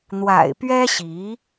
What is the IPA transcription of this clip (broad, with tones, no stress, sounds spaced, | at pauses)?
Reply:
n̪ w a̰˨˩ ɪ̯ p ɥ ɛ˥ ɕ i˧˥